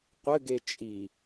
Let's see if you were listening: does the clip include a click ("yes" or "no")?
no